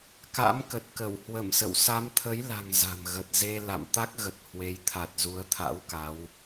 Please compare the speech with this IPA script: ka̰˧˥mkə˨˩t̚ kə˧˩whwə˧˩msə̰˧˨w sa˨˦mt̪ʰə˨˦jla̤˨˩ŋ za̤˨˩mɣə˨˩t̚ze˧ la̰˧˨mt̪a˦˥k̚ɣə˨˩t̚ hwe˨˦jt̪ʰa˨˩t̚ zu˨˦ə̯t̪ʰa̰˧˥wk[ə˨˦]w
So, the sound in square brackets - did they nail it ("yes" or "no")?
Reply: no